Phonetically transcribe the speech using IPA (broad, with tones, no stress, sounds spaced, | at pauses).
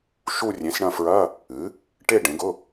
ʃ u˦˨ rʲ ẽ˩˥ s ɳ ɐ̃˦˨ f ɹ ɐ˧˥˧ | ɨ˩˥ | ʈ e˦˨ ɖ ẽ˩˥ ɡ ʊ˧˥˧